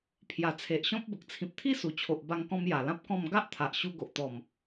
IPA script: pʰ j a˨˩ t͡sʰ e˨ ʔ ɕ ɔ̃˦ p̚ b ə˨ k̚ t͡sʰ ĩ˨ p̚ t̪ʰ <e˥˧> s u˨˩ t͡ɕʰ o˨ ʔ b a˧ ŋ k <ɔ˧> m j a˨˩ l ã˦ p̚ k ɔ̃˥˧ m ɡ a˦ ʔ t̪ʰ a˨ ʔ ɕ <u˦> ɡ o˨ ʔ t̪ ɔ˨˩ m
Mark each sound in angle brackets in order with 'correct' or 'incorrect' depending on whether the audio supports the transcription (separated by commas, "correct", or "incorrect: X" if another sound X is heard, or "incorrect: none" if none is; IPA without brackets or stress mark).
incorrect: i˥˧, incorrect: ɔ̃˧, incorrect: u˧